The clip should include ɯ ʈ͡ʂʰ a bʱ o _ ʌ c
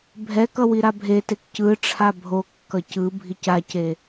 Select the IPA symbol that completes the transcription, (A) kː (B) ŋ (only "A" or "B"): A